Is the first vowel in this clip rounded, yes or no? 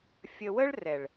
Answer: no